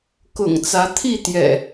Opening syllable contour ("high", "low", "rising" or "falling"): low